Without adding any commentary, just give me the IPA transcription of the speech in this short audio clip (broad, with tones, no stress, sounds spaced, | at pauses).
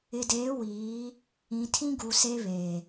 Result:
ɪ˨ d eː˨˦ w iː˨˦ | ĩ˨ tʰ ĩ˦ ɡ u˨ s e˦ β eː˨